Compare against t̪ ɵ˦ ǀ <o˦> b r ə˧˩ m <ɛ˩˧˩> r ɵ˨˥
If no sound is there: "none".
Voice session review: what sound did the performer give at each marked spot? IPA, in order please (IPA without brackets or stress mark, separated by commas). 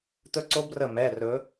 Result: o˦, ɛ˩˧˩